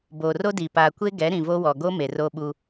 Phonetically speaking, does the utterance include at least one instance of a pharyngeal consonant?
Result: no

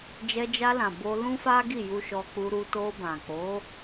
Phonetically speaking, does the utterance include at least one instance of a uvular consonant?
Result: no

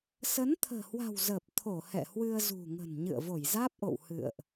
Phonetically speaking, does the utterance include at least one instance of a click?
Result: no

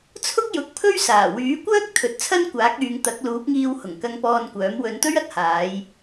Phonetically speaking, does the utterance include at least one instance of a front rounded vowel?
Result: yes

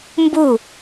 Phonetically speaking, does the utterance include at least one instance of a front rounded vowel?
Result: no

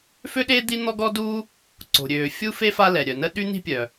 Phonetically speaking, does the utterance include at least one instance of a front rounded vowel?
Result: yes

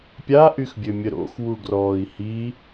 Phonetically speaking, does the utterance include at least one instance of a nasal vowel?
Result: no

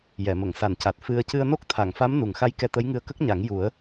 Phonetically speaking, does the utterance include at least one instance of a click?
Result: no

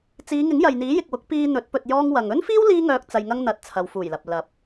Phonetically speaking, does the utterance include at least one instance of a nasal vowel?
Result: no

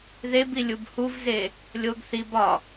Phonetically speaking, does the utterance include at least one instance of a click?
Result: no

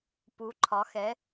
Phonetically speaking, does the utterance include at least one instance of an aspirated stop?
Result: yes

